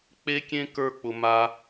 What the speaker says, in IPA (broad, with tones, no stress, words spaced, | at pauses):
k͡pe˦kʲẽ˦ kə˞˦k͡pʊ˧ ma˦